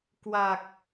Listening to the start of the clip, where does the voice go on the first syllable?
low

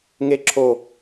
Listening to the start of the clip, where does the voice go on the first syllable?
high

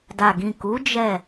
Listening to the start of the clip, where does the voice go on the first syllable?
low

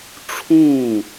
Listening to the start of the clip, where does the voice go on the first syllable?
falling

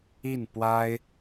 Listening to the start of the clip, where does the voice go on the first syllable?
falling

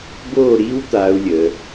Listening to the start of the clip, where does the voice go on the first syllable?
falling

